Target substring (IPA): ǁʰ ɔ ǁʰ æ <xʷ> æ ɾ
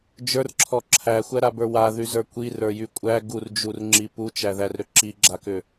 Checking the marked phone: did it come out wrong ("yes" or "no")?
no